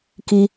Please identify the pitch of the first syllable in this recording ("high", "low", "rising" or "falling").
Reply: high